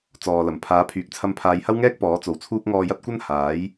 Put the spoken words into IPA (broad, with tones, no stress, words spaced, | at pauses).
t͡sɔː˨lɐ˨˩m pʰaː˨˥pʰyː˨k̚ t͡sʰɐ˧mpʰaː˨˧jhɐ˥wŋɛː˥k̚ pɔː˨˥t͡so˨wt͡sʰuː˥k̚ ŋɔː˧jɐ˥t̚kʷɐ˥n haː˨˥j